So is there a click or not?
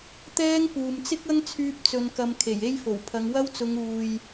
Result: no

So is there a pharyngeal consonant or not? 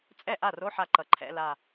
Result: yes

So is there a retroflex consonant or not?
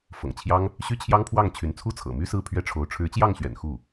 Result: yes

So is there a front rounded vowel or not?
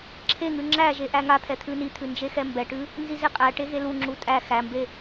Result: no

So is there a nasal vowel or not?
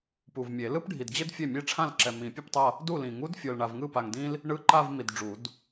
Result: yes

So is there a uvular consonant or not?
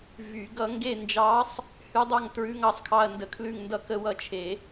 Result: no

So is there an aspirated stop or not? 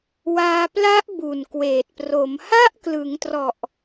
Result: no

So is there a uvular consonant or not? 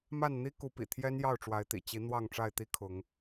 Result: no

